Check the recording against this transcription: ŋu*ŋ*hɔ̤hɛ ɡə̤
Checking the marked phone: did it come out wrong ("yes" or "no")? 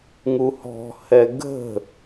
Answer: yes